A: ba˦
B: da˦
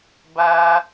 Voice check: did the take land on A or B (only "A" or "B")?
A